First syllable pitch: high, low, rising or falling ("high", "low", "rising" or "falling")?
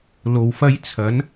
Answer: low